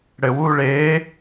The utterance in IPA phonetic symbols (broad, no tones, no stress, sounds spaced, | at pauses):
ɽ ɘ w uː ɭ eː